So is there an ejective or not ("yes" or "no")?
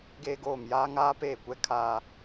no